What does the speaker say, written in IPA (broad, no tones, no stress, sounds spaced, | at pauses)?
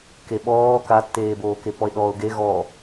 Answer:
k e ɓ ɔː k a tː eː b oː k e p ɔ ɪ̯ ɗ ɔː ʊ̯ ɡ e ɣ ɔ